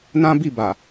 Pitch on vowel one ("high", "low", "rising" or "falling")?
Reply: high